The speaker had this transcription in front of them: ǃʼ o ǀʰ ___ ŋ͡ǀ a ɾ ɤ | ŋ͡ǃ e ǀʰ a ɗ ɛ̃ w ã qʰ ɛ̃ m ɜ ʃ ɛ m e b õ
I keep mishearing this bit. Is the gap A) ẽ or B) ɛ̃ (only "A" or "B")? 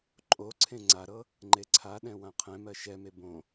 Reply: A